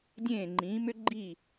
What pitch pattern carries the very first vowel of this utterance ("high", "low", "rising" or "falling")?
falling